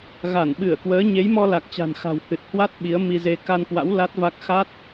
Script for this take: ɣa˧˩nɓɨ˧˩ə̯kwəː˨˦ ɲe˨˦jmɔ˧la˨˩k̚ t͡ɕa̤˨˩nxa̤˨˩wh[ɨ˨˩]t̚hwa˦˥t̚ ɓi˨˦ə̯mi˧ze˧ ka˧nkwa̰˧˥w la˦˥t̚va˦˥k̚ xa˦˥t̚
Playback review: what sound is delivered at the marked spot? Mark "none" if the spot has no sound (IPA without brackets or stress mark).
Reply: ɨ˨˩